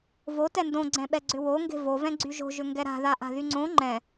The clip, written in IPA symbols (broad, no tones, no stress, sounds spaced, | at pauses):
v o t ɛ n d õ ɡ͡ǀ ɛ̃ ɓ ɛ ɡ͡ǀ ʏ w o ŋ ɡ e̤ v o v ɛ̃ ɡ͡ǀ y ʒ o̤ ʒ ʏ ŋ ɡ ɛ ɾ a̤ ð a ʔ a̤ ð y ŋ͡ǀ õ ŋ͡ǃ ɛ̃